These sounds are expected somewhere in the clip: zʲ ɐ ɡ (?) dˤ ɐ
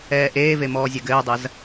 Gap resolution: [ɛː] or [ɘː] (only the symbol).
ɘː